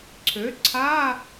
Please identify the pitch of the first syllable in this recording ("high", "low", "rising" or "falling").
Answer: rising